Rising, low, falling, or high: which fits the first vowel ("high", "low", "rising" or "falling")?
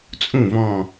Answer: falling